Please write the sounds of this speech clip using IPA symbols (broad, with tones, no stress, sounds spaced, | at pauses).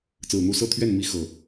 t͡s ɹ̩˨˩ n̪ u˥˨ s ɤ˥˨ t̪ʰ ɥ ɛ˥˨ n m i˦ x ɤ˨˩